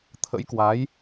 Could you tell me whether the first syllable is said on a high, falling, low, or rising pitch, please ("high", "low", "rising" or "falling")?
rising